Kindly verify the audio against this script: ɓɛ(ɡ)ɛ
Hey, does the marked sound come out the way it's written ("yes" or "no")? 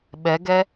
yes